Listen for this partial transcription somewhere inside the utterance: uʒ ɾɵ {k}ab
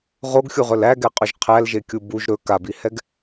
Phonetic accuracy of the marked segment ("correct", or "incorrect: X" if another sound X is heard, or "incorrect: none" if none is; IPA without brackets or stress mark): correct